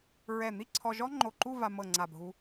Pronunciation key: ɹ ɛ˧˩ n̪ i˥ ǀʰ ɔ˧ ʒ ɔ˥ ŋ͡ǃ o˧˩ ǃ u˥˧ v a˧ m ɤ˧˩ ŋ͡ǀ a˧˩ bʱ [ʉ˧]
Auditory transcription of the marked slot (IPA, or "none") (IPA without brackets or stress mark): u˧